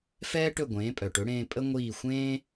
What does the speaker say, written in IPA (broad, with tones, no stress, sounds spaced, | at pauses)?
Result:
f ɛː˥ ʈ ɵ˥˩ ɡʷ ẽː˩˥ pʼ œ˩ ʈ ɵ˩˥ ɽ ẽː˧ pʼ ə˥ ŋʷ iː˥˩ xʷ ẽː˥